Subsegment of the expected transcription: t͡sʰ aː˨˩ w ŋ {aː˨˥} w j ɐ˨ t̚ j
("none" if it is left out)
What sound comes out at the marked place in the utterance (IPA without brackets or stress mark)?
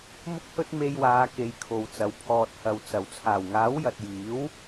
aː˨˥